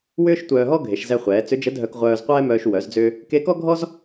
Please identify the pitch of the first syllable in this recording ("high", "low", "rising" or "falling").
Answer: high